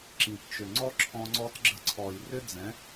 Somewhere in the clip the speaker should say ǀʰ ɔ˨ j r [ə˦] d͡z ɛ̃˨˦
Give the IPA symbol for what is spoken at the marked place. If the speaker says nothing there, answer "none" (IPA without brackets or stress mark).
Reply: ʏ˦